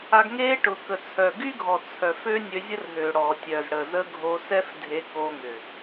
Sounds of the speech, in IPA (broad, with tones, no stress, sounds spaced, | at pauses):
a˧ ɡ ŋ e˦ ʈ ʊ˨ k ə˨ t͡sʰ œ˨ ɡ y˦ ɡʱ ɔ˨ t͡sʰ œ˨ f ø˦ nʲ ø˧ zʲ ə˦ r ɦ ø˨ ɽ ɔ˨ tʲ œ˨ z ɽ ə˨ z ə˦ ɡʱ o˧ s ɛ˦ f dʱ e˧ k o˧ ŋ ʏ˨